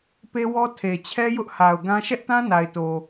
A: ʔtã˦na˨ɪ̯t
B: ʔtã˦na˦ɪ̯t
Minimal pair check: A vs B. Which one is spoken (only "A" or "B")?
A